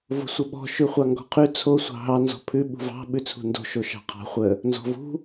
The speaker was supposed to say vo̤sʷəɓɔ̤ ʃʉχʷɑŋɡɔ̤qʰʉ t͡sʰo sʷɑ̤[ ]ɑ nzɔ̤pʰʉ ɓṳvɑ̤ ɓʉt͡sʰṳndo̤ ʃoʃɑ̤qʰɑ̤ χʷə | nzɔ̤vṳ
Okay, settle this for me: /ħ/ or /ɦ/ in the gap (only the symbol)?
ɦ